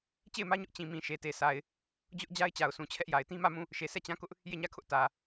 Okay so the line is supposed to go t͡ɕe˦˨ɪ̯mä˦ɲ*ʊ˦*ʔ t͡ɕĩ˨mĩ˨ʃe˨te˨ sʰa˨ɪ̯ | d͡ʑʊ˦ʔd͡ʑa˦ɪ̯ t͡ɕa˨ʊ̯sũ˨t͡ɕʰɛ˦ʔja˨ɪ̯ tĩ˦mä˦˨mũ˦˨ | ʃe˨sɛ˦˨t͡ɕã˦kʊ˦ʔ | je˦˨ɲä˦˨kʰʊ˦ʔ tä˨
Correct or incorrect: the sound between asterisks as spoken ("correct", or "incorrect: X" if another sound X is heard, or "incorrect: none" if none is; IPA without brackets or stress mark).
correct